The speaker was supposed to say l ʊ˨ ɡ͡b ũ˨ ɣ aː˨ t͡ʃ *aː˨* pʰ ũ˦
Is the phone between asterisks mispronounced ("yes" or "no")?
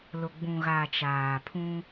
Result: no